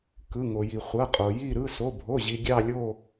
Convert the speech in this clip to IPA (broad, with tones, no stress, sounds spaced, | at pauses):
k ɯ˩˧˩ ŋ o˩ j i˩ χʷ ɐ˩˧˩ qʼ o˩ j i˦˨ ɾ ɯ˩˧˩ s o˩˧˩ bʱ o˩˧˩ ʑ i˩ ɡʲ ɑ˦˨ lʲ o˦˨